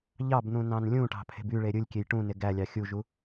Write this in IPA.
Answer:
ʎ ɑ b n̪ ũ n ɑ̃ n lʲ ũ ʈ ɑ̤ pʰ e̤ b y ɭ e ɾʲ ɯ lʲ kʲ e j ʈ ũ n e ɡ æ lʲ ɑ xʲ u ʒ u

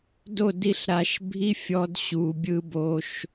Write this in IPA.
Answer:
d o˦˨ d i˧ ɬ ɾ a˨ ʃ bʱ i˦ fʲ ɔ˧ d ɕ u˨ bʲ ɯ˧ b o˧ ʃ

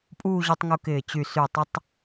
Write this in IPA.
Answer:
pʼ uː˥˧ ʑ u˧ tˤ ŋ u˧ k ɪː˧˩ t͡ɕ y˧˩ s y˧˩ tˤ ɪ˥ tˤ

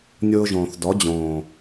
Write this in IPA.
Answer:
nʲ ʊː˧ ʒ õː˨ θ d ɔ˨˦ d͡ʑ õː˨

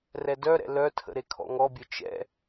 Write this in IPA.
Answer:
r ɛ d œ ɾ ɛ̰ l œ tʰ ə̰ ɾ e kʰ ɔ̰ ŋ ɔ bʲ œ t͡ʃ ɛ̰

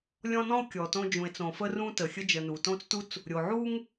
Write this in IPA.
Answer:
lʲ ɔ̃˦ n ɔ̃˥ o̯ kʲ ɔ˩ t õ˦ d͡ʒ ũ˩ e̯ t͡s õ˩ f ə˥ r ũ˥ t ə˩ xʲ ə˦ d͡ʒ ə˨ n u˩ t õ˥ t͡s t u˥ t͡s | ɾʲ o˩ ʕ u˥ ŋ

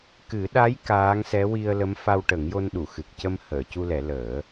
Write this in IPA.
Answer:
k ɨ˨˩˦ ɗ a˧˥ j k aː˧˥ ŋ s ɛ˧˥ w i˧ ə̯ l ə˧˥ m f a˧ w ʈ ə˨˩˦ ŋ j o˧ n ɗ u˨˩˨ x ɨ˨˩ k̚ c ə˧ m h əː˨˩˨ c u˧ l ɛ˨˩˦ l əː˨˩˦

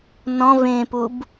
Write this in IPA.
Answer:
n ɔ̃ v ẽ p u b

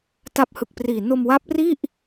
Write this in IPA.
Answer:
t a˦˥ p̚ h ɯ˨˩ k̚ p r iː˨˩ n o˧ m w a˦˥ p̚ r i˥˩ ʔ

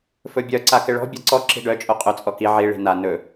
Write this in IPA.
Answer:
f ɵ bʲ œ ǀ a k ɪ ɭ ɔ̤ bʲ a ǀ ɔ ǁ i̤ ɖ œ t͡ʃʼ o qʼ ɵ t͡sʼ ɔ k i ʕ i ɭ i̤ n a n ɵ

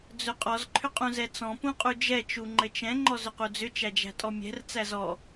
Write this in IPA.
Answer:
d͡z ɵ qʼ ɔ z ǃʰ ʏ qʼ ũ z ɛ t͡s ɔ̃ p ũ qʼ u d͡ʒ ɛ t͡ʃ u ŋ͡ǃ ɘ t͡ʃ ɛ̃ ŋ͡ǃ ɔ z ʏ q u d͡z ʏ t͡ʃ æ d͡ʒ æ̤ tʼ ɔ mʲ ɛ̤ r t͡s æ z ɔ

